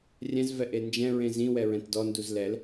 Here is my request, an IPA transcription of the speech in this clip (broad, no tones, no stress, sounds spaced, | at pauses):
rʲ ɛ̃ z v ɛ ʔ e n d͡ʒ ɛ̃ ɹ ẽ z ĩ w ɛ ɹ ɛ̃ t d ɔ n d u z l ɛ l